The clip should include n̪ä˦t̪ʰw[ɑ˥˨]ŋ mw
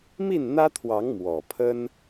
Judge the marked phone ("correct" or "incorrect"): incorrect